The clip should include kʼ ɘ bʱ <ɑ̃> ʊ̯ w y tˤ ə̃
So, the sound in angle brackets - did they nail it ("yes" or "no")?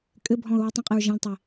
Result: no